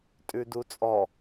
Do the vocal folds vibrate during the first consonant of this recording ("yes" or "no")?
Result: no